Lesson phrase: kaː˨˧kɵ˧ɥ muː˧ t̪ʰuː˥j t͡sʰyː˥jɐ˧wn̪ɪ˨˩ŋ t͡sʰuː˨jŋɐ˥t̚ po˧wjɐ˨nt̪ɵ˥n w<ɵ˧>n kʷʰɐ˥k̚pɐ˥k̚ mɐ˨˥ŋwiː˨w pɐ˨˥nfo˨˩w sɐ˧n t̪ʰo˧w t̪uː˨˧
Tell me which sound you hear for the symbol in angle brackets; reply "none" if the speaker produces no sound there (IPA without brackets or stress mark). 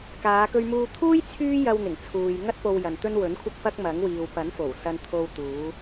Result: ɵ˨˥